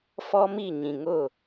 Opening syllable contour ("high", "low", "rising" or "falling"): high